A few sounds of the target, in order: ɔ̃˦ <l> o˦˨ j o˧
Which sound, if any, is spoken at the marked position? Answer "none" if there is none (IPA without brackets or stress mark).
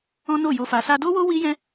n